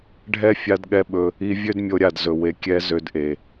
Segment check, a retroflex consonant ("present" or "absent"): present